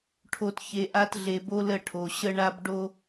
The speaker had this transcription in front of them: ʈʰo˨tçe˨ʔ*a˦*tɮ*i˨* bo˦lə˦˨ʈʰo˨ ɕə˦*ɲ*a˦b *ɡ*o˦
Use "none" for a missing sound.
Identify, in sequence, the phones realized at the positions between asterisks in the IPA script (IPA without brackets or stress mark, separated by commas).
a˦, e˨, ɳ, ɖ